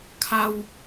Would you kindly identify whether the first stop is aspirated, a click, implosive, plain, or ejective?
aspirated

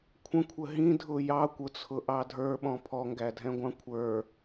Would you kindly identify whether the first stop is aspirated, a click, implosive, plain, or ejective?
aspirated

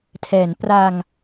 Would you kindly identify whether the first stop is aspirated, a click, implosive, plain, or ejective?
aspirated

